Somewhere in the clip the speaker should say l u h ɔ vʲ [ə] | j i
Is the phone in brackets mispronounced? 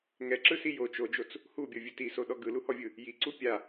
yes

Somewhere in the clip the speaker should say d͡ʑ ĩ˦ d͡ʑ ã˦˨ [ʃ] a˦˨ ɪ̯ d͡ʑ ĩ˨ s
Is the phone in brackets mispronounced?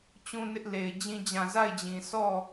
yes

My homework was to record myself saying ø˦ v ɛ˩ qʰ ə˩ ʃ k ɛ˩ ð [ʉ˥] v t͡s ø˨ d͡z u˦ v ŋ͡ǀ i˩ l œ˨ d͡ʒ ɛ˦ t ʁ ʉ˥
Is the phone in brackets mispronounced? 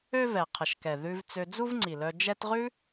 yes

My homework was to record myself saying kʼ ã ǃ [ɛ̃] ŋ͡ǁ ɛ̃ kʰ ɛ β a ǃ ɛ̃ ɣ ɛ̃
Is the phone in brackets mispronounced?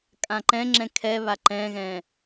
no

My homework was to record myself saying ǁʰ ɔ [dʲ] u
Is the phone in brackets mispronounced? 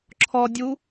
no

